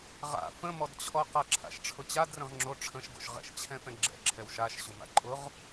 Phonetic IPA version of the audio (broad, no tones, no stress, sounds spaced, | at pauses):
ʁ a̰ f ə̃ m ɔ d t͡ɕʰ ɔ q a ǁʰ a̰ ʃ ʈ͡ʂʰ ʊ t͡ɕ a d r ə̃ ʁ ŋ͡ǁ o ʈ͡ʂʰ ə̃ ʃ ɡ o̰ ʃ ʁ ɛ̰ ʃ t͡ɕʰ ɛ̃ f ɛ̃ ɡ͡ǁ ɛ̰ ǁʰ ɛ w ʃ a ʃ ɕ ʊ m a̰ ǃʼ ʊ ʁ